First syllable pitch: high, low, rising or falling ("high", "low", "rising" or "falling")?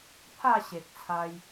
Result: falling